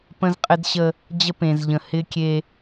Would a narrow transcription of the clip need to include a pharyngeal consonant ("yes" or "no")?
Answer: no